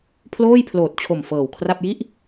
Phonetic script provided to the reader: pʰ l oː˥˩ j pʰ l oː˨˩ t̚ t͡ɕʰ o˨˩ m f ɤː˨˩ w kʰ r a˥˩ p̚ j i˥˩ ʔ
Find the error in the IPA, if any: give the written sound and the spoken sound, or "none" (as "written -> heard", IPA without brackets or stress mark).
none